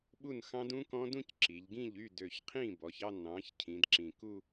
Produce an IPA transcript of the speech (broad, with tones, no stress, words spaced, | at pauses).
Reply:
ɓu˥˩nxɑ̃˦˥dũ˦˥kɔ̃˦˥ dũ˥˧cǁi˩˧ʎɡĩ˥˩ʎ y˥˩ dø˨˩çqʰĩ˥˩bɔ˩˧ç ɑ˥˧ nɑ̃˩˧ç cʰĩ˩˧dǁĩ˨˩ ku˥˧